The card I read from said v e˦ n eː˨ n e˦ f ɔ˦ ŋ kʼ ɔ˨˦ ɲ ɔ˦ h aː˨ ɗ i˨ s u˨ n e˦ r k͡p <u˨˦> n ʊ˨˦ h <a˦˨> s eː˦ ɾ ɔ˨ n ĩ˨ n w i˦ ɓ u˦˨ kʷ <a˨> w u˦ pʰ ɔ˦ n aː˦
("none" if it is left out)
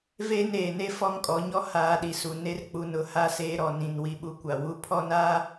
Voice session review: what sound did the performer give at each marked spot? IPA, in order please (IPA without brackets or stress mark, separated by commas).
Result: u˨, a˦˨, a˨